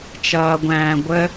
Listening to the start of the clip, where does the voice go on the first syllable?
low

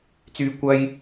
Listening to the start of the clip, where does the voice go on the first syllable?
low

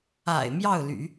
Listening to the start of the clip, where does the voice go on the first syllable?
low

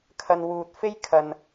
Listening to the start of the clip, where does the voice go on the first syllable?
low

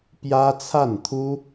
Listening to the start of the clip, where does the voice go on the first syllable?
high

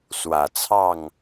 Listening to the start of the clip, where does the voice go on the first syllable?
low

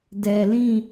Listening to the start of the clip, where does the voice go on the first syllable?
low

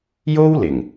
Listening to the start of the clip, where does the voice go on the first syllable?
high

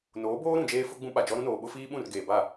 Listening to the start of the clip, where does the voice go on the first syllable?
rising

